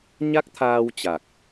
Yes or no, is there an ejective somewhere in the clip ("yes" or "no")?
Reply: no